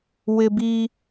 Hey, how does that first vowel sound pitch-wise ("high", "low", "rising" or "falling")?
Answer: high